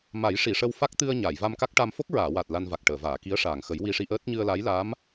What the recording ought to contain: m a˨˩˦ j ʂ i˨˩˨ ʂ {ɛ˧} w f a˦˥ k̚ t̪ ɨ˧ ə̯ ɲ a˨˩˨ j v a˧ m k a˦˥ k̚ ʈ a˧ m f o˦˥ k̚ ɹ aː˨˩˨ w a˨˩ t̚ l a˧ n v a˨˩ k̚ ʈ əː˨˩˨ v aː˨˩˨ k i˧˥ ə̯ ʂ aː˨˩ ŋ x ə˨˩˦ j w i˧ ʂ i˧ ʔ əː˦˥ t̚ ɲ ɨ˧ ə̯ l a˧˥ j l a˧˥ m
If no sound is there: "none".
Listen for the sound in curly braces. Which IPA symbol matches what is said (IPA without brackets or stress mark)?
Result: ə˧